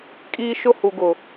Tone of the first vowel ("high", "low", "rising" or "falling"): high